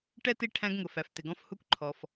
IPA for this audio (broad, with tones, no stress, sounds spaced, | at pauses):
ʈ ɛ˥ t i˦ ʈʰ æ̃˦ ɡ ŋ ʊ˩ f æ˩ f t ɪ˩ ɡ ɔ̃˦ f h u˦ kʷ ǃʰ ɔ˩ f